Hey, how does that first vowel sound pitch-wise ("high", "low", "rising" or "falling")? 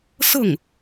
falling